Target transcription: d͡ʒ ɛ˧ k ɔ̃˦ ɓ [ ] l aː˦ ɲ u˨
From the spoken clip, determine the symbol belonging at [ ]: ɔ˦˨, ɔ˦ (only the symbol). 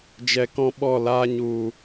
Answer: ɔ˦˨